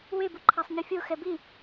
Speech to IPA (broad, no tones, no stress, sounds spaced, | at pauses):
w e b u ǃʰ a sˤ ɲ i fʲ o x ɛ b i